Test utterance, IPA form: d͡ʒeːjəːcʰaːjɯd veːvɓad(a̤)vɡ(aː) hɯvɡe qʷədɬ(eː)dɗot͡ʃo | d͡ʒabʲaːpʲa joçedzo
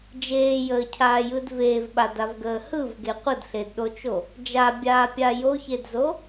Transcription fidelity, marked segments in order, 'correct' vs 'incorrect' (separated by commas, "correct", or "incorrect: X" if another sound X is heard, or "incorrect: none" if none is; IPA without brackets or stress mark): incorrect: a, incorrect: əː, incorrect: e